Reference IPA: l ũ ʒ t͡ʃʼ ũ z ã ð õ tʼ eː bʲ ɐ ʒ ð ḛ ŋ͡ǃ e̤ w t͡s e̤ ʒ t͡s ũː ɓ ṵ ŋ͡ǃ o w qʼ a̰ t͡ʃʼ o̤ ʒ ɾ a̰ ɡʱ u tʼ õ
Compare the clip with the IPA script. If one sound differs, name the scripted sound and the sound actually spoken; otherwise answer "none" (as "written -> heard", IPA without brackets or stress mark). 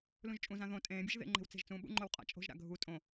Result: eː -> ẽː